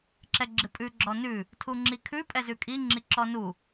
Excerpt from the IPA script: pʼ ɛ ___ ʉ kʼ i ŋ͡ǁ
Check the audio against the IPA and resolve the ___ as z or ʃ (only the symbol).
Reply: z